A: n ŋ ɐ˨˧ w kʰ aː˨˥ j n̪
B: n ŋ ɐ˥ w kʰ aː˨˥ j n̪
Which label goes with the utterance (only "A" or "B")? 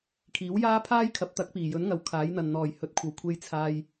A